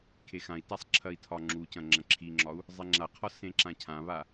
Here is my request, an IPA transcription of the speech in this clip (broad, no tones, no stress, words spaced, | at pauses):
kʰexãi̯tasˤ ǁʰɐi̯tʰɒŋ͡ǁucɐ̃ ŋ͡ǁɐ̃ǁʰiŋ͡ǁɒu̯ | zˤeŋ͡ǁaqʰɒ sẽǁãcʰãβa